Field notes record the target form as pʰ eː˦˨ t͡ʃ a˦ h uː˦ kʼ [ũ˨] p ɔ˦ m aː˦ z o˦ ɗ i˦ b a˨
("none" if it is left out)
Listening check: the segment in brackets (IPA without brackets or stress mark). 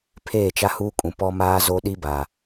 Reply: ũ˨